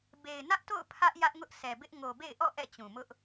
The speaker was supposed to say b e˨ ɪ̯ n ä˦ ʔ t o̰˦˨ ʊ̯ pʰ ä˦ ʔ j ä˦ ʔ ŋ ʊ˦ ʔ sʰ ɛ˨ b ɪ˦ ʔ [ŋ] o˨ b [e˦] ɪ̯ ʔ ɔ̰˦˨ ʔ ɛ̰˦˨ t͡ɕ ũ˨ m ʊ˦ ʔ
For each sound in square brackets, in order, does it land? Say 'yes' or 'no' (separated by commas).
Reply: yes, no